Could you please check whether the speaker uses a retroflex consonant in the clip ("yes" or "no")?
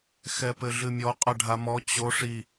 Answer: yes